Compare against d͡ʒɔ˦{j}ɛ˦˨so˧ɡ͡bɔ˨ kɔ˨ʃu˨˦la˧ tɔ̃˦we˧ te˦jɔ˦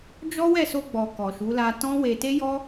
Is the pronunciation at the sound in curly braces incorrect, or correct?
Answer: incorrect: w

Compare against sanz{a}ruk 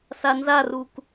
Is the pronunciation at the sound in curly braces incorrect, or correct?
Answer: correct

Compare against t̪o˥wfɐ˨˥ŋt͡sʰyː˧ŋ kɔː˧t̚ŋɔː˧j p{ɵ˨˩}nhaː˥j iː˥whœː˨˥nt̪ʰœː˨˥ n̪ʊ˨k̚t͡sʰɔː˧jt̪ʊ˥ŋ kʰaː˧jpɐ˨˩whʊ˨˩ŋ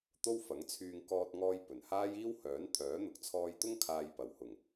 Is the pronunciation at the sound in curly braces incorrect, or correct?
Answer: correct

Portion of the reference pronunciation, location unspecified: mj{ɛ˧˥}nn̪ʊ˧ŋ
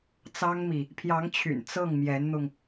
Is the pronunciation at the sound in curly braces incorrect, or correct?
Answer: correct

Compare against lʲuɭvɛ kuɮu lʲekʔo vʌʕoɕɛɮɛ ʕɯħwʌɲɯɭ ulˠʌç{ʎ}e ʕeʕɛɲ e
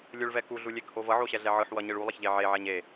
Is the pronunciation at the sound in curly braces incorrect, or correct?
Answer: correct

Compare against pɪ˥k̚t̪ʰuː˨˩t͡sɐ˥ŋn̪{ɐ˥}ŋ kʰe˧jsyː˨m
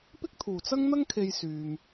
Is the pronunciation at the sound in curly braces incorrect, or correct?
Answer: correct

